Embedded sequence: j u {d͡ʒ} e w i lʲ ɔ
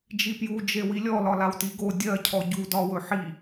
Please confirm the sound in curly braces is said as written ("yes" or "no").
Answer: yes